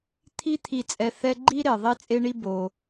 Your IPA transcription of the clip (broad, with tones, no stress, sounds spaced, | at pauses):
t̪ʰ i˦ t̪ʰ i˨ t͡sʼ ɛ˨ θ ɛ˥ ɡ͡ǃ i˥ ɾ e˩ ðˤ i˥ t͡sʼ e˥ ɳ i˥ b o˩